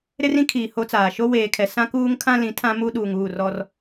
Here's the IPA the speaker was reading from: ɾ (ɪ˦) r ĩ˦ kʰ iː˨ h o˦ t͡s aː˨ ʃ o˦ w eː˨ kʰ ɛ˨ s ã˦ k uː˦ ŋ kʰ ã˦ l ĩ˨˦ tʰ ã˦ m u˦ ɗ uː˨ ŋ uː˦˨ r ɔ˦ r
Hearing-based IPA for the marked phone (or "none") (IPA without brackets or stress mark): ɪ˦